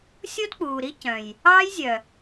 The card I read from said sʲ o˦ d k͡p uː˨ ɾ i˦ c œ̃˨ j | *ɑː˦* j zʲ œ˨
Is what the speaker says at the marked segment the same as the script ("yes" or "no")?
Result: yes